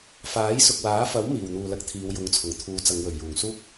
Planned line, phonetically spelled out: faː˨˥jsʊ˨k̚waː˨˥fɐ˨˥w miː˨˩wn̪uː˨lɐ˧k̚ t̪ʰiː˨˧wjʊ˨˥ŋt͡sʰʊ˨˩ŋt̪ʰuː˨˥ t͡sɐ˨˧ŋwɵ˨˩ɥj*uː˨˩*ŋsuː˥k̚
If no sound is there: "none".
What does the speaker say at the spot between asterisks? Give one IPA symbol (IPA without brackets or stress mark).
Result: uː˨˩